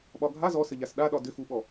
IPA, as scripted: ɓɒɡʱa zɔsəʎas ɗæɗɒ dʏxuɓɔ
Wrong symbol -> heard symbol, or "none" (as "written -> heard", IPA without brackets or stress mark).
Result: æ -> a